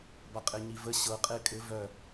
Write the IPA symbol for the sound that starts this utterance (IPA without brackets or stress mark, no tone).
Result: b